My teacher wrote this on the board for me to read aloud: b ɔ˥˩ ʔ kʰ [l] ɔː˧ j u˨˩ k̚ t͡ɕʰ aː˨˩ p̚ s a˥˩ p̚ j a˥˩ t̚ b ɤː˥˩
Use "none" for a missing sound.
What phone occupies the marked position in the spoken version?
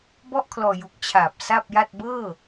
l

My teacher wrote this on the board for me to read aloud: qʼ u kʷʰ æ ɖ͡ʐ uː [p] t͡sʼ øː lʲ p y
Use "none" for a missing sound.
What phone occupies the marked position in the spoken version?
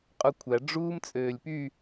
m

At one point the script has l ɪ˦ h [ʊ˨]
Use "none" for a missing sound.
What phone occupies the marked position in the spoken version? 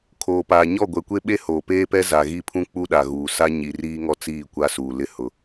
ʊ˨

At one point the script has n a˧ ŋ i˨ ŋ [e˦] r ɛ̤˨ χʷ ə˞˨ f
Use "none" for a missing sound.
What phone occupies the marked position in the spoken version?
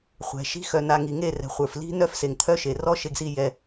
e˦˨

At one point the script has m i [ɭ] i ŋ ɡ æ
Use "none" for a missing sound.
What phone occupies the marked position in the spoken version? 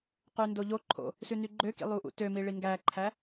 ɭ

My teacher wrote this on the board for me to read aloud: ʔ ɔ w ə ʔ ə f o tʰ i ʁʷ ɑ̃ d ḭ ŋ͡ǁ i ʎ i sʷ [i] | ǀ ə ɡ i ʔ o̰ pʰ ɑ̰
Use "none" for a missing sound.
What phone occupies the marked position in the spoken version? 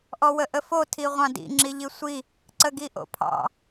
i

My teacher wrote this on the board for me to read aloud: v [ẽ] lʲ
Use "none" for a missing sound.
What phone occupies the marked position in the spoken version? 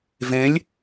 ẽ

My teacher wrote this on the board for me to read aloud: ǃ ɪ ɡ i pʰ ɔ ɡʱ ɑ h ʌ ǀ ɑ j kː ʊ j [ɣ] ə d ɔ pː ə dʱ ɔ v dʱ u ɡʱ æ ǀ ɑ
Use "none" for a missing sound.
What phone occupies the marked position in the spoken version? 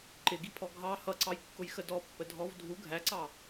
x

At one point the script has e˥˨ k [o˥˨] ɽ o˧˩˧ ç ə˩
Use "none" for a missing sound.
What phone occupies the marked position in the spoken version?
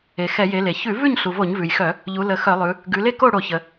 o˥˨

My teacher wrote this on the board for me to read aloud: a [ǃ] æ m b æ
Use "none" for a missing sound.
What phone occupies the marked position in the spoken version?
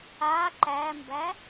ǃ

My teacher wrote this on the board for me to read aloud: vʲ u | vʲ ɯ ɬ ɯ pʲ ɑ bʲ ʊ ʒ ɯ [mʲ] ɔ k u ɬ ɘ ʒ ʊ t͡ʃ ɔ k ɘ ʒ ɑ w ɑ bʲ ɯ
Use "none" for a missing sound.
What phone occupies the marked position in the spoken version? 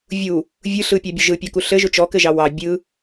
pʲ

